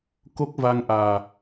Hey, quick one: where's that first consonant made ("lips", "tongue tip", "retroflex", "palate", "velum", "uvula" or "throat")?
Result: velum